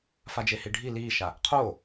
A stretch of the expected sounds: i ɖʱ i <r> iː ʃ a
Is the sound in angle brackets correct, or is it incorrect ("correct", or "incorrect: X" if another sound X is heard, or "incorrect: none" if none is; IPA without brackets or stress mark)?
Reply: incorrect: l